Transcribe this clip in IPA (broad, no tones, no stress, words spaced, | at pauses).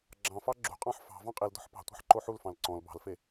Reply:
ɡ͡ǁɑ̃fɑ ɡ͡ǁṳqʼɑ̃ħ fɑ̤ vɑ̃qʼildɔ̤ħ pɑ̤tʷɑ̤ħ ǃoħulfɑ̃l ǀɔ̃l bɑ̤lfe